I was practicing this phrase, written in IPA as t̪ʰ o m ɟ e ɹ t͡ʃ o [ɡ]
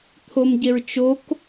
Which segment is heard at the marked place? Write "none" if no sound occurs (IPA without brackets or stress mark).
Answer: k